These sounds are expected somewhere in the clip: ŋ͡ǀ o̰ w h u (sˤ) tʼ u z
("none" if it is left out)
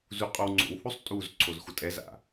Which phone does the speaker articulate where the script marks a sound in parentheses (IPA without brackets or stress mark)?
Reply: sˤ